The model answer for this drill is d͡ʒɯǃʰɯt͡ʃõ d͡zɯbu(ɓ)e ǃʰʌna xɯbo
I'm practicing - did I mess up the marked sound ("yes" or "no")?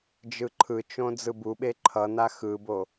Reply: no